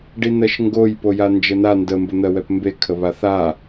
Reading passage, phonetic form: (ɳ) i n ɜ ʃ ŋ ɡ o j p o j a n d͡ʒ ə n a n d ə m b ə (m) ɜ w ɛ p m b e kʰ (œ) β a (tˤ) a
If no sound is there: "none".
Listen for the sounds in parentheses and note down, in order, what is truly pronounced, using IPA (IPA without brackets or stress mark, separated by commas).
ɖ, n̪, ə, θ